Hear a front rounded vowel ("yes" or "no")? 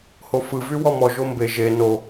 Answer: yes